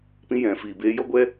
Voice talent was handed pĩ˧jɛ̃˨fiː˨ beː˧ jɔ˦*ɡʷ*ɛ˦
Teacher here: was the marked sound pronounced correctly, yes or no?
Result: yes